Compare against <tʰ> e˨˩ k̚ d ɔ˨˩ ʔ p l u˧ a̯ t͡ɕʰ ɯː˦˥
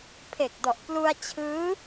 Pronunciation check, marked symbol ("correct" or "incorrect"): incorrect